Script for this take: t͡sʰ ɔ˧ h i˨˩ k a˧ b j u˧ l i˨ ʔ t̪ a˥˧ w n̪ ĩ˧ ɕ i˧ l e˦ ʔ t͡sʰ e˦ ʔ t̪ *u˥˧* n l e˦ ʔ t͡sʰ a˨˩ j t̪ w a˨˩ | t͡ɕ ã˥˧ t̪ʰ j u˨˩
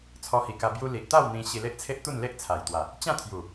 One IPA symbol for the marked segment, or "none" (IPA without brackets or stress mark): u˥˧